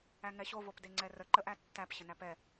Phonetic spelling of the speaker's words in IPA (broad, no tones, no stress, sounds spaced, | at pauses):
æ ŋ ɛ ɕ o v o p d e ŋ͡ǀ ɛ r ə ǃ ə ʔ æ tː æ p ɕ ə n æ p ɛ